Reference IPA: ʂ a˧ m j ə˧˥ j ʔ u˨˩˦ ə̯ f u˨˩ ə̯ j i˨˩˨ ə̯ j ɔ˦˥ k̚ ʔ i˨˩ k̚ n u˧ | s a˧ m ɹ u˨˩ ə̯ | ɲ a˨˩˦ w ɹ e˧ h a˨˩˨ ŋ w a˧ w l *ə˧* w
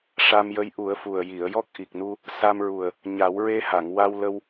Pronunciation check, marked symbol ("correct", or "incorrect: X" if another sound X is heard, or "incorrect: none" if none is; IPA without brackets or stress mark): correct